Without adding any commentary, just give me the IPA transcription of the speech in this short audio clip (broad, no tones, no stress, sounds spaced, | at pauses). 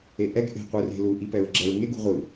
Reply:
e ʔ ɛ ɡ ʔ e̤ qʷ ɯ r e̤ l u ʔ i p ɛ ɹ ɡ͡ǁ ɛ ɹ ŋ e ɡ ṳ ʁʷ ɯ